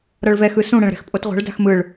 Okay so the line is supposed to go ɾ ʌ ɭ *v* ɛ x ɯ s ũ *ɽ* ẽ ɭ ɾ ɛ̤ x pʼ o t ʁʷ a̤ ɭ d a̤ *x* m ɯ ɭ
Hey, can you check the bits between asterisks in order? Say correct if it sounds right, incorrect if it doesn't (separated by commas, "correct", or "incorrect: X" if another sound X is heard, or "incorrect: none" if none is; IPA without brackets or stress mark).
correct, correct, correct